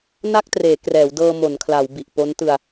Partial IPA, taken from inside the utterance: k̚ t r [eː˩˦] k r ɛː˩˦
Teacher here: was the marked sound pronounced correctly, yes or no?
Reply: yes